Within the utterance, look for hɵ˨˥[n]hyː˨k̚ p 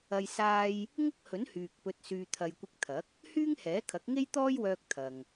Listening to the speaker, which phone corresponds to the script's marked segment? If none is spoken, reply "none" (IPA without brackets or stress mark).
n